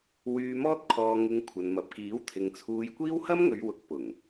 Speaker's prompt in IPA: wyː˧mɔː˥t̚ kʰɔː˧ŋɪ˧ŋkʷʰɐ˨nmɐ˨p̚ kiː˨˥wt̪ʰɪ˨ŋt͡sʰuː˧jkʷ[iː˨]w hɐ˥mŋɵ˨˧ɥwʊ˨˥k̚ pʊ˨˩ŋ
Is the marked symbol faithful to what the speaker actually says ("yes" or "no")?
no